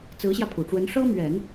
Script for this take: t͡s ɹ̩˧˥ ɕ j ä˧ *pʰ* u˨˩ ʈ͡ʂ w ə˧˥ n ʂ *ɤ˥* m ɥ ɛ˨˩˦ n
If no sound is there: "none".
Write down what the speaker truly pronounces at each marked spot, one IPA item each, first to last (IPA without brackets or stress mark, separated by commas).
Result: pʰ, ɤ˥